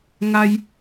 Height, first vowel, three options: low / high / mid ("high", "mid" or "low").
low